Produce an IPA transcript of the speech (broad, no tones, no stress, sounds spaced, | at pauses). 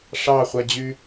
ʂ ɑ χʷ æ d͡ʑ y